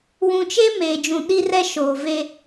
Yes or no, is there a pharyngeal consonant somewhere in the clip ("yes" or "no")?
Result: no